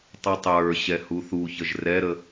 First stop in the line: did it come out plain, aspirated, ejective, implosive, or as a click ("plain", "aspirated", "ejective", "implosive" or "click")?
plain